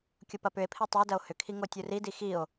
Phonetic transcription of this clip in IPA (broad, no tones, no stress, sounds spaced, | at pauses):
kʲ ʊ p ɐ p ʏ e̯ pʰ i tˤ ʏ o̯ d ɐ o̯ h ʏ kʰ i ŋ o tʲ u r i d i x i o̯